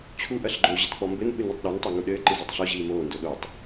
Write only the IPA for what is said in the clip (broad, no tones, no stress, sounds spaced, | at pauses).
t͡ɕʰ u ʔ ɐ ɬ ɡ͡ǃ o ʑ ɐ t k͡p ɔ m b ɘ n ɓ ɨ n u tˤ ɗ o n tˤ a ŋ u ɗ ɘː ǃ ɨ z ɔ tˤ ɬ ɔ ʑ iː m oː n d o ɗ o tˤ